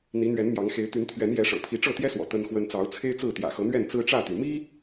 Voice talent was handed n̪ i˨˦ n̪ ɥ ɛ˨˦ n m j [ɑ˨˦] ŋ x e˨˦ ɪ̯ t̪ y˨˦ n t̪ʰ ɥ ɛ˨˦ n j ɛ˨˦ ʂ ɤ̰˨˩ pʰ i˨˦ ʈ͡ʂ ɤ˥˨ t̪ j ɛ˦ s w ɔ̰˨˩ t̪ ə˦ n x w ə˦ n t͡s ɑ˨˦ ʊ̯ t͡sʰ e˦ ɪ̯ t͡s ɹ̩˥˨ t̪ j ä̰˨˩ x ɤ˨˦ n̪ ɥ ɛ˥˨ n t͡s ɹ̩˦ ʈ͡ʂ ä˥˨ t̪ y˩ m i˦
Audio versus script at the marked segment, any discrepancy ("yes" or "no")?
no